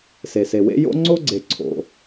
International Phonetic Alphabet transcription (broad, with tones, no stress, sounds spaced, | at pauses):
s e˩ s e˩ w ḛ˥ j o̰˥ ŋ͡ǀ o˥ ɡ͡ǀ e˩ ǀʰ o̰˩